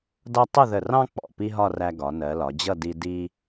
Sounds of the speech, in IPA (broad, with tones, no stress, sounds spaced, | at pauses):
d ʌ˥ tˤ ə˥˧ ð ə˧˩ r ɑ̃˥ k͡p ɔ̰˧˩ p i˥ ɦ ɒ˥˧ r æ˧ ɡ ɒ˩˧ n ɜ˩˧ l ɒ˩˧ d͡ʑ ʌ˥˧ d i˥ d i˥